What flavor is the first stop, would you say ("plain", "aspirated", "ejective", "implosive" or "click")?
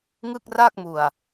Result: plain